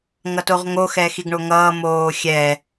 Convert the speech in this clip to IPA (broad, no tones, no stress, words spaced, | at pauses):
ŋʌtoʁŋo xɛːxiɡɳoŋʌː moːxʲɛ